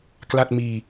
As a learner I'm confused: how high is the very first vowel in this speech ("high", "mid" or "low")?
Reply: low